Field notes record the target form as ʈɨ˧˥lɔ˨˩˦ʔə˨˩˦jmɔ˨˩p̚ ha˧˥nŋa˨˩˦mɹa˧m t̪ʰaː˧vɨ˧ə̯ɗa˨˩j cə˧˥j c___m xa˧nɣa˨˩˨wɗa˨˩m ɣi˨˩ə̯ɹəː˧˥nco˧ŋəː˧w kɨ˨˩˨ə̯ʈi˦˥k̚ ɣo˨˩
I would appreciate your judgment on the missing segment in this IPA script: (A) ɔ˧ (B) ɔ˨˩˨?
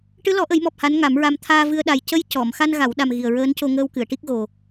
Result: B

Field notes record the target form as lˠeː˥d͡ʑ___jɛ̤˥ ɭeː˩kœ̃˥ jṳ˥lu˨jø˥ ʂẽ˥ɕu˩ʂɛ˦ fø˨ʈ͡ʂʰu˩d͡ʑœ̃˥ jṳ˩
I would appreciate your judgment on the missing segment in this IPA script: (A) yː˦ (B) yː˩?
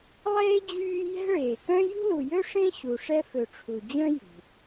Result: A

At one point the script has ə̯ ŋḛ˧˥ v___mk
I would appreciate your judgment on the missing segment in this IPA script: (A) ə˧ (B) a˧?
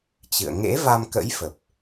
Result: B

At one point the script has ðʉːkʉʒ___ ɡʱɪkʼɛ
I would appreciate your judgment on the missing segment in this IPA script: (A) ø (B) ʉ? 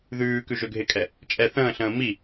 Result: A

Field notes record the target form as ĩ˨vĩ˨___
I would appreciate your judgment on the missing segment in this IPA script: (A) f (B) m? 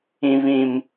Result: B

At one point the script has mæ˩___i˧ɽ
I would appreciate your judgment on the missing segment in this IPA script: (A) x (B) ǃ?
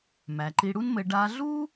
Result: B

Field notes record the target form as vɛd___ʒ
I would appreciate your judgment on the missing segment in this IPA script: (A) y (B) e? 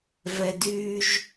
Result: A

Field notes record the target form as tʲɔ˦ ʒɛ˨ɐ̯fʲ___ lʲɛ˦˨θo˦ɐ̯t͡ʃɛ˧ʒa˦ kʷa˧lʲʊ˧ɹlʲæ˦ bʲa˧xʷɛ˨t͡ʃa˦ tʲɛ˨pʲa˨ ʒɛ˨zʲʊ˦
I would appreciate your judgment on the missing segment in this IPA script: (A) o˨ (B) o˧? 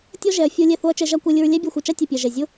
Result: B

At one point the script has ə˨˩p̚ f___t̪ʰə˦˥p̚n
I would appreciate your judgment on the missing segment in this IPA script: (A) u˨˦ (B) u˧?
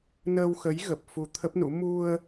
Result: B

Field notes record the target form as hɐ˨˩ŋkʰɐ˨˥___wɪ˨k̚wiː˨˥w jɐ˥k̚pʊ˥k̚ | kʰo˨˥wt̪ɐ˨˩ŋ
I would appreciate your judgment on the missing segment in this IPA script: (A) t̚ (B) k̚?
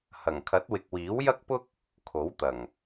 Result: A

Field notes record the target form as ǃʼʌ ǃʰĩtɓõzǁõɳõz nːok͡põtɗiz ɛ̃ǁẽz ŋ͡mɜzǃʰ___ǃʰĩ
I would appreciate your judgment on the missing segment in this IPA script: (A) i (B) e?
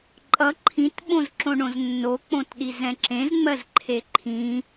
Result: B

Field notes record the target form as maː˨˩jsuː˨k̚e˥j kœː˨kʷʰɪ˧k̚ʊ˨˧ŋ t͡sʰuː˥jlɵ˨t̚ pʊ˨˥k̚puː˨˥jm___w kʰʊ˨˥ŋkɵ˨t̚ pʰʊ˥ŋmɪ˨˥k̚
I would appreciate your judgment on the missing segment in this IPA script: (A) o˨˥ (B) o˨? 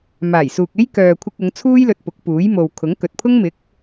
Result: B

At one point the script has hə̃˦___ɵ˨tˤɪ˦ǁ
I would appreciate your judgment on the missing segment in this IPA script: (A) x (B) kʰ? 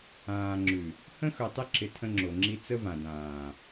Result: A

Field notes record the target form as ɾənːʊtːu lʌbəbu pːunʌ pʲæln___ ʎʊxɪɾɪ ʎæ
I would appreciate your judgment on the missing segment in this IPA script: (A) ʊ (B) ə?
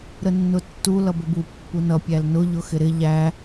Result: A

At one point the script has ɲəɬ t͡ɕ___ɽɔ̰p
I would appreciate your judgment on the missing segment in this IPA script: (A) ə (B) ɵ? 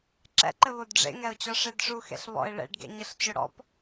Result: B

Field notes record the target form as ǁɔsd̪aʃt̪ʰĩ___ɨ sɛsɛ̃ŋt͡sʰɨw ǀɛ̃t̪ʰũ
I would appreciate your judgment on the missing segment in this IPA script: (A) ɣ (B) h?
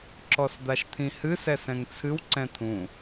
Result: B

